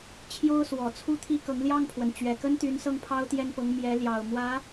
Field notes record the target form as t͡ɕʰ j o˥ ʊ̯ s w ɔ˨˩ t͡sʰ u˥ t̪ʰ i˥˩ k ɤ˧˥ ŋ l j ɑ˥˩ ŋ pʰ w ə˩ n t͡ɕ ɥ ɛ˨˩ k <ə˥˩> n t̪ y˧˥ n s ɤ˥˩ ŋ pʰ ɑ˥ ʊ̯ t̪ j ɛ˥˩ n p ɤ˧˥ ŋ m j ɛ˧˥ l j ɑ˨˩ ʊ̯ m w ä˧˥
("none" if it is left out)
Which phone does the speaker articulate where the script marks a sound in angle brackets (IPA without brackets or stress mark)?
ə˥